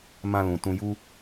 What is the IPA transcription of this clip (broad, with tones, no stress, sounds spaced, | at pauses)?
m ã˧ l ũ˨ t ũ˧ j u˦